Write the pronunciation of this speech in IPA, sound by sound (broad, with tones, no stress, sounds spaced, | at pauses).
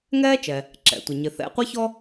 ŋ ɛː˥ t͡ʃ ɛ˩ | ǁ ɛ̰˩ tʷ ɪ˩ ɲ ɪ˩ θ ɛ̰˧ qʷ ɛ˥ ç ɔ˥